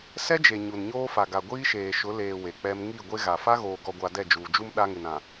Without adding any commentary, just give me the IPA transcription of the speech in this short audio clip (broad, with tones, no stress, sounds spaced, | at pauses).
s ɛ˦ d͡ʒ e˨ ɲ u˨ n ɲ oː˦ f a˨ ɡ a˨ ɡʷ iː˦ ʃ eː˨ ʃ ʊ˨˦ l eː˨ w e˨ k͡p ɛ˦ m ŋ i˦˨ ɡʷ e˦ ɣ a˨ f a˦ ɣ oː˨ ɡ ɔ˨ ɡʷ a˨ d ɛ˦˨ d͡ʒ uː˨ d͡ʒ u˦ m ɗ a˦ ŋ ɪ˨ n ã˨